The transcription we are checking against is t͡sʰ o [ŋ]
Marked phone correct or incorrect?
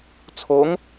correct